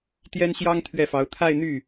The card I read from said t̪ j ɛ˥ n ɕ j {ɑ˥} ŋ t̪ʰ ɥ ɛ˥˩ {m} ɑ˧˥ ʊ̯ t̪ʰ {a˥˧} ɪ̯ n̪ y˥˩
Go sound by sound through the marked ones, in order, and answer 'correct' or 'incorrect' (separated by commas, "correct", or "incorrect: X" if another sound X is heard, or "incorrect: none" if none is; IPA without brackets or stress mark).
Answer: correct, incorrect: f, correct